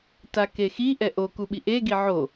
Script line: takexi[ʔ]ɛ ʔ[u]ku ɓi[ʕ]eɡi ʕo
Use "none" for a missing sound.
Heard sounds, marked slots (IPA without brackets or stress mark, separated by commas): ʔ, o, ʔ